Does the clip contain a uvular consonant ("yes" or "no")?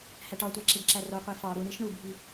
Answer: yes